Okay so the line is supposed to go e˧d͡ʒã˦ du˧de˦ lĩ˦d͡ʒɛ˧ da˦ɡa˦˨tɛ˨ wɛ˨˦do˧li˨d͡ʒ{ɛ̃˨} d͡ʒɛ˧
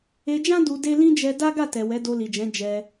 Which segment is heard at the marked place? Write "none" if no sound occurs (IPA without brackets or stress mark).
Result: ɛ̃˨˦